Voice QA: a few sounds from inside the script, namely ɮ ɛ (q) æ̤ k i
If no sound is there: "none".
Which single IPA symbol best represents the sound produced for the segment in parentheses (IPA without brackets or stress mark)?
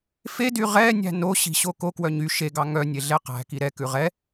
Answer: q